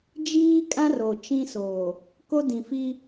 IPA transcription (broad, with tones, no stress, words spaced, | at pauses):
d͡ʒiː˦kʼã˦ro˨ t͡ʃĩ˦soː˨ | ko˦dĩ˨fi˦